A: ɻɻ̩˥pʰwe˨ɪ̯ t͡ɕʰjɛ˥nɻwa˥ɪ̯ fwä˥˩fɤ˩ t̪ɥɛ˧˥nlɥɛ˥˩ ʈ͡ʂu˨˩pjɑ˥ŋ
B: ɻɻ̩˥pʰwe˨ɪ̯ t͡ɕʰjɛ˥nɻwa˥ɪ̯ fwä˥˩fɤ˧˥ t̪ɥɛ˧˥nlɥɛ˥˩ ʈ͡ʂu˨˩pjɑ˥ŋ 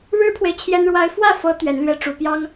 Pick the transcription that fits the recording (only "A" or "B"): B